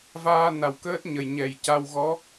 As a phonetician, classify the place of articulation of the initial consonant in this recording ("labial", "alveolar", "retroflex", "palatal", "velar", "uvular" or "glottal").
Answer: labial